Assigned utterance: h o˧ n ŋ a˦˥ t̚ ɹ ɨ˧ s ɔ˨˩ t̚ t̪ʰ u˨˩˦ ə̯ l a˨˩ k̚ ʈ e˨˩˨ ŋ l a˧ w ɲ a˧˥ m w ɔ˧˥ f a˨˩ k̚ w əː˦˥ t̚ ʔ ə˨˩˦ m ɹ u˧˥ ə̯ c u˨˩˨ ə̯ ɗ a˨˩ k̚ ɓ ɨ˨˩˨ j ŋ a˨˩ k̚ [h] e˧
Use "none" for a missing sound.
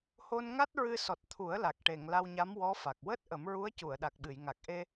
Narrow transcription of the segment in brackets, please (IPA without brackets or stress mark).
ʔ